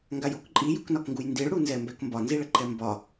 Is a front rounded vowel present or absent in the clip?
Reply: absent